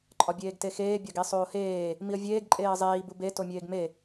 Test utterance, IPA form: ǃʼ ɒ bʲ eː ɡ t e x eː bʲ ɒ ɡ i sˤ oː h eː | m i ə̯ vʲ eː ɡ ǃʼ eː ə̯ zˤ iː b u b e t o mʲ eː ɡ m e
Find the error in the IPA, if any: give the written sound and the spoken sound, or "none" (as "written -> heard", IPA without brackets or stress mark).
none